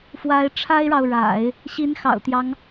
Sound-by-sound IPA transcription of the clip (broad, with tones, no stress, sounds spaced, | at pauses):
f w a˧˥ ɪ̯ ʈ͡ʂʰ a˥ ɪ̯ ɻ ɑ˨ ʊ̯ ɻ a̰˨˩˦ ɪ̯ | ɕ i˧˥ n x ɑ̰˨˩ ʊ̯ t̪ j ɑ˦ ŋ